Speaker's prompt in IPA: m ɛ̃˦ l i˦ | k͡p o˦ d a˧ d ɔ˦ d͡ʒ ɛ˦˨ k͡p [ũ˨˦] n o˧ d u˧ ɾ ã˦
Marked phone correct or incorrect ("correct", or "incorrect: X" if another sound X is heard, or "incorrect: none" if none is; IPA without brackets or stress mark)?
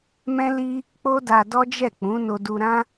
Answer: correct